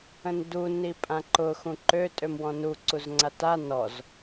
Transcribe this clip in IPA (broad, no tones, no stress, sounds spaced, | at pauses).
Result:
ə̃ n d u n i pʼ ã ǃ ʊ x ũ ǃ ø tʼ ø m w ɔ̃ n u ǀ u z ŋ͡ǀ a t a n ɔ z